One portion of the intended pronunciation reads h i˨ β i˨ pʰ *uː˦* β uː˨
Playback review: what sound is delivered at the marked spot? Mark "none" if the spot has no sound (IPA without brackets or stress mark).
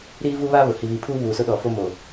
uː˦